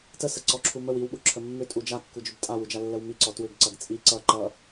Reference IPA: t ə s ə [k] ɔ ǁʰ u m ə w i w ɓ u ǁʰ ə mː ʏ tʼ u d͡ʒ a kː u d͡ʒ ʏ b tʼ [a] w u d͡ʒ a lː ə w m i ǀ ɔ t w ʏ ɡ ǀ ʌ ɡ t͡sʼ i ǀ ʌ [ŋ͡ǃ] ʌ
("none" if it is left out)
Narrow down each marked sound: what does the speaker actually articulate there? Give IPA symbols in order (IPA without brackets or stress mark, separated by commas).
ǀ, a, ǃ